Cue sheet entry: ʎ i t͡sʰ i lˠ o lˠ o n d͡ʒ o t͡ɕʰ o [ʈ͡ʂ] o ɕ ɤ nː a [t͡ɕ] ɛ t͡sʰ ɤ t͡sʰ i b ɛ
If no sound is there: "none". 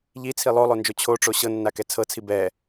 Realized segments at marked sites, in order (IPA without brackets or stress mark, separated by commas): ʈ͡ʂ, k